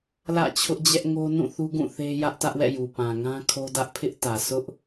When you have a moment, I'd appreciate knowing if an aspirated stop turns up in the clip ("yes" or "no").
yes